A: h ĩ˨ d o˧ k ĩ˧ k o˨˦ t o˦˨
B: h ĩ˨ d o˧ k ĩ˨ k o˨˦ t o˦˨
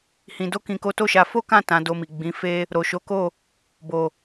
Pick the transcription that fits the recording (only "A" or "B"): B